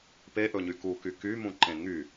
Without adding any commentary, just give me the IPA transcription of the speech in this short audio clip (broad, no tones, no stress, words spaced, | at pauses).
peʔɵɲy kuky kymũǃẽ ŋy